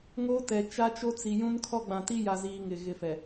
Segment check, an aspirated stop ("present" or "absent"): present